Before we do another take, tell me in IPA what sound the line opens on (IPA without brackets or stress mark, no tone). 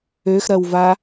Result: ø